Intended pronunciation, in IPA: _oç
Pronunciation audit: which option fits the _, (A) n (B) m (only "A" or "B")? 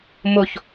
B